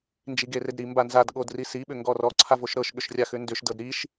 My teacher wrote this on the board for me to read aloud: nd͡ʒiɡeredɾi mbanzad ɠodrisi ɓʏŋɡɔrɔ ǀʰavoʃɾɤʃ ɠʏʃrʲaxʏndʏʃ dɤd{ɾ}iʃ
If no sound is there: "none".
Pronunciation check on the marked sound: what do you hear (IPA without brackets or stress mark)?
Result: ɾ